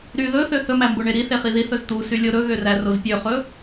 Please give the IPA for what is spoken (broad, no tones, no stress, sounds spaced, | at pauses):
ɾ y ð ɵ θ ø θ ɵ m æ m b o ɳ e ɾ i θ e χ i ð i θ ɵ z t̪ u s y lʲ o ɾ ɵ ɣ ø r æ r o z pʲ ø χ ɵ